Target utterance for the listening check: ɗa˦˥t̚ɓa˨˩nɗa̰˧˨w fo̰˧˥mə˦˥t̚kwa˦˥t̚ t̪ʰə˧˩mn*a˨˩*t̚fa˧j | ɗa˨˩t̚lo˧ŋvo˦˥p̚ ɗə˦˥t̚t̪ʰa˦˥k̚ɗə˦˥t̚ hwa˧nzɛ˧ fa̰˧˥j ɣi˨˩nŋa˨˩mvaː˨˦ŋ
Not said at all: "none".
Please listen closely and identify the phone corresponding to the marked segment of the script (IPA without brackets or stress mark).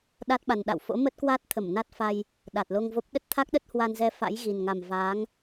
a˦˥